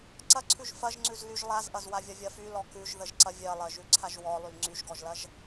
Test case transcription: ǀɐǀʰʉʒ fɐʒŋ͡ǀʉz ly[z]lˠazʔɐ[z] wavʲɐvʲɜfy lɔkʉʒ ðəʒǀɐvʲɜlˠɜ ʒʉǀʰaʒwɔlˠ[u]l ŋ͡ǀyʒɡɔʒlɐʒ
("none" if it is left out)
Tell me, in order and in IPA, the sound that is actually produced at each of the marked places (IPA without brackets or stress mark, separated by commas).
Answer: ʒ, z, y